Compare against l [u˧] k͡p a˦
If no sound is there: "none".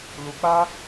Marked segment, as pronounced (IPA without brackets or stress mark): u˧